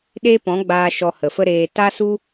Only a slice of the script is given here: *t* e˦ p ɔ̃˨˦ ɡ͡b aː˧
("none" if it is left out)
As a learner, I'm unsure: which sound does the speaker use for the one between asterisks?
ɗ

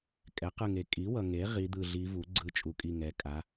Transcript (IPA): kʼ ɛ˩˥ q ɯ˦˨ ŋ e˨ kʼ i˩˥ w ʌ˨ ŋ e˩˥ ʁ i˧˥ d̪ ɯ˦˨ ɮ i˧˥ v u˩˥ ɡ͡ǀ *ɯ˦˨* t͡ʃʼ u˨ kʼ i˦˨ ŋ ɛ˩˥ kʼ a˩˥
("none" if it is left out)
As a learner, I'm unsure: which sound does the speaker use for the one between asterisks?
ɯ˧˥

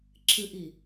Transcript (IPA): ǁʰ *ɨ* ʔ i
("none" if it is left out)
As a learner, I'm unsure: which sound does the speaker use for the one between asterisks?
ɨ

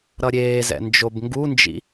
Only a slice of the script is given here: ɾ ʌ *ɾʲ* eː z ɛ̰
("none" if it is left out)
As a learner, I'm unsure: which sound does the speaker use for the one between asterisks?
ɾʲ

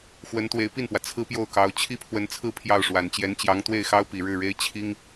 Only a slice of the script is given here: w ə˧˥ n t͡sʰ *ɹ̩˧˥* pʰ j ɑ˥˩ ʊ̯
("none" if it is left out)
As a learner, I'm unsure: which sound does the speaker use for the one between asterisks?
ɹ̩˥˧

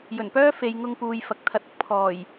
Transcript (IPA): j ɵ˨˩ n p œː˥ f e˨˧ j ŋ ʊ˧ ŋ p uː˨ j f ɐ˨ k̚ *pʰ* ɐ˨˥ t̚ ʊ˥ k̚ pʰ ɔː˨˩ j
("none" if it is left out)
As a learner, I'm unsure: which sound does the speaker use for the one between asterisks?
t̪ʰ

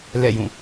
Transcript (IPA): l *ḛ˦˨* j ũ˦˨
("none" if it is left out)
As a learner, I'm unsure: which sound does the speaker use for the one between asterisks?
ɛ̰˦˨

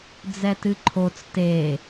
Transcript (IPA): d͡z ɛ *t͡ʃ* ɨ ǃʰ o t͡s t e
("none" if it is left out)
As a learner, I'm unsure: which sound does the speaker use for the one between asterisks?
t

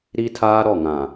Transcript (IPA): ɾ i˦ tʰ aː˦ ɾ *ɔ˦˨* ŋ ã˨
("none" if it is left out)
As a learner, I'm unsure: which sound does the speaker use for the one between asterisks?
ɔ˦˨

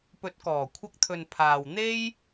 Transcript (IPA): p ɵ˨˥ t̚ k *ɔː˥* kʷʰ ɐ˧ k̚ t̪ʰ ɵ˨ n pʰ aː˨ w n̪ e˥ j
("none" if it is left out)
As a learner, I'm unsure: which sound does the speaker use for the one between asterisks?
ɔː˨˩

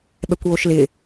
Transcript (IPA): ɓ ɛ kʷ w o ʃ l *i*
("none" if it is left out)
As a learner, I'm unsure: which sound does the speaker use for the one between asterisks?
ɪ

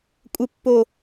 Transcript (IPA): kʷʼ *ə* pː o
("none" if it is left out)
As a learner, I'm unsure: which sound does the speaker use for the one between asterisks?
ə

